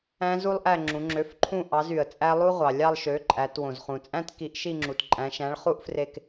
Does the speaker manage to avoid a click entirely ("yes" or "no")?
no